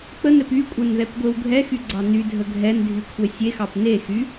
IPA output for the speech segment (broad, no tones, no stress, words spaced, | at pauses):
k͡pənɛp ykʷʼɛnðɛpɡʷew ɡʱɛxyɡ͡ǀɑ nydʱə ɡʱɛndʱykʷʰɛ sʲexɑp nexy